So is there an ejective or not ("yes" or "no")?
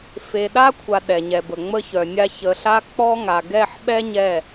no